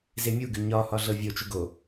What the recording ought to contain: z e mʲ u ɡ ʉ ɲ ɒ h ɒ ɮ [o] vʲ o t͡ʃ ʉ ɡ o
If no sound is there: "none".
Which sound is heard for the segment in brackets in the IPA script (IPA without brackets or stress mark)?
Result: ɤ